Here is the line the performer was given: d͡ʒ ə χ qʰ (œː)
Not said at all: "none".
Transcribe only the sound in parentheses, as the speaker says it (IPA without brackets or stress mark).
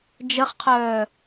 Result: œː